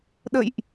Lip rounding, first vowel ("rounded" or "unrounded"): unrounded